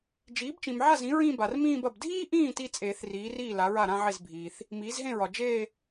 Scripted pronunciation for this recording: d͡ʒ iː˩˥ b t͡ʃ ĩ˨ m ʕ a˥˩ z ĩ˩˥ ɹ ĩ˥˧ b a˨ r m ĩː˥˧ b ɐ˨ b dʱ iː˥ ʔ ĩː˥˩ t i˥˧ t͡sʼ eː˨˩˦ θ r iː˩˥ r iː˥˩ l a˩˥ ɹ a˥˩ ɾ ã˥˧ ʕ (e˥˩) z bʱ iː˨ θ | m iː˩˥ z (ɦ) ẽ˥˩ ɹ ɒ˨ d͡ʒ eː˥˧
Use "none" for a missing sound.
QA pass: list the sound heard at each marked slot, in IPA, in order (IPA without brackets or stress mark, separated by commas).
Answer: e˥˩, ɦ